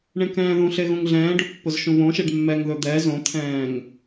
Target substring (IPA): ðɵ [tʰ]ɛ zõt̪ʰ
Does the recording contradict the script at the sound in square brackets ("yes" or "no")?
yes